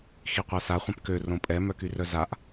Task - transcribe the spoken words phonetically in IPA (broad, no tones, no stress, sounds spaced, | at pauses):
x i qʷ a s a χʷ œ̃ p k ø r õ pʼ ɛ m œ k y r œ z a ʔ